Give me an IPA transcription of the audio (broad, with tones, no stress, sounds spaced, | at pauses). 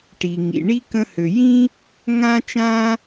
ʈ i˩ ŋ ḭ˩ ɳ i˥ k ə̃˧ h ø˩ j ĩ˥ | ŋ ã˥ t͡ʃ ã˥